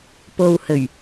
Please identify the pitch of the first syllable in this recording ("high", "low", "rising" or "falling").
low